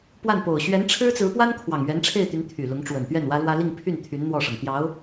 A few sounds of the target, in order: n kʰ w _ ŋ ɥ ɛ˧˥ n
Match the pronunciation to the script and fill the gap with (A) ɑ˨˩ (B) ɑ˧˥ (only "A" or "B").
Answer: A